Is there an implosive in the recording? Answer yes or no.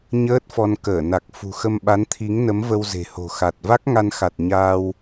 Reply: yes